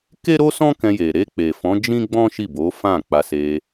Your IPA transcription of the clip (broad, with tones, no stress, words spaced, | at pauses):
ke˦ɾo˦sɔ̃˦ kɛ̃˧je˨ ɾe˧ k͡pe˨fɔ̃˨˦ d͡ʒĩ˦ɡ͡bɔ̃˦ ʃi˦˨bo˨˦fã˦˨ k͡pa˧se˧